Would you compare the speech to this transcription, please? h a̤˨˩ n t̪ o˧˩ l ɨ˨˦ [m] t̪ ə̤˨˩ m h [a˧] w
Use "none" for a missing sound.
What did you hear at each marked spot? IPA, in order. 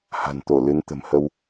n, ə˧

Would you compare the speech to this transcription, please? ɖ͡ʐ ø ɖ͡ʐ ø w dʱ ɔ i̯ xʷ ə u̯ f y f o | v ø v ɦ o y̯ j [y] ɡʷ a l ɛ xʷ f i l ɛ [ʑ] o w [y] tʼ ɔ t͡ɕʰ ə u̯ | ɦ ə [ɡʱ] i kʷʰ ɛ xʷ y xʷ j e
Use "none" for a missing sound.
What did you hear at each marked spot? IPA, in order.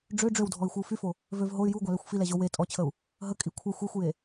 u, ʑ, e, kʼ

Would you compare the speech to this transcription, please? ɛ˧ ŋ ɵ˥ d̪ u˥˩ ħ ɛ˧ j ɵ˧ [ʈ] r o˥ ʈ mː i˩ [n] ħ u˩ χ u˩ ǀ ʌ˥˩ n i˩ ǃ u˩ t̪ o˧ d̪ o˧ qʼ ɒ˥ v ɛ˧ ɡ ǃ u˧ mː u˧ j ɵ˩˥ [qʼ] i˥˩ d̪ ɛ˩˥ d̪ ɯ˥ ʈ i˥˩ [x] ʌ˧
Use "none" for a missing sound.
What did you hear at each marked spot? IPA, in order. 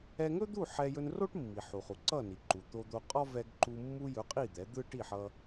n, none, qʼ, ħ

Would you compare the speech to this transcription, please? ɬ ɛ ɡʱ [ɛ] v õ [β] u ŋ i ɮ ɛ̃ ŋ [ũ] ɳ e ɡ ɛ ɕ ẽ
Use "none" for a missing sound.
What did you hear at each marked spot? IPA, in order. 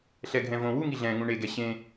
ɛ̃, w, ũ

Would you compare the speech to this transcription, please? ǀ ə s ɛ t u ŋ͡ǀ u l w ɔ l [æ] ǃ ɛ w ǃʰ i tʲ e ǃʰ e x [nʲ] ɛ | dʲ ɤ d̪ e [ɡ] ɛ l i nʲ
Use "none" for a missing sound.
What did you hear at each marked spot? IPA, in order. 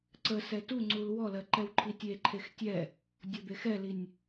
ɜ, tʲ, x

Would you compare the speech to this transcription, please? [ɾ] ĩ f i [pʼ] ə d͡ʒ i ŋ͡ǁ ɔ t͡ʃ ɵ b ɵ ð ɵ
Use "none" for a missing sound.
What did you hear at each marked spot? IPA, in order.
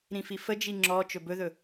ɾ, f

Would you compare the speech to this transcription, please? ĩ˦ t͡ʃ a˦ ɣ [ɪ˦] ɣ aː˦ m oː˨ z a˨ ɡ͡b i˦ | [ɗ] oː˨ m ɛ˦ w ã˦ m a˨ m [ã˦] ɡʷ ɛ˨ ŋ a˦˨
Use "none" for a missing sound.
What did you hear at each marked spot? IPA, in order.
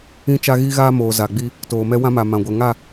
i˦, t, ã˨

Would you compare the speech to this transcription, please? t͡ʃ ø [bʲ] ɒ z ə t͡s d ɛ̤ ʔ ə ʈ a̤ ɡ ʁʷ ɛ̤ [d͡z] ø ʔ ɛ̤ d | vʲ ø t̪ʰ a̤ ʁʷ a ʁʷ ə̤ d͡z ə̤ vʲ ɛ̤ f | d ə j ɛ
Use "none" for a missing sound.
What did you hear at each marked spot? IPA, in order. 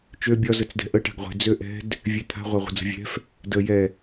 bʲ, d͡z

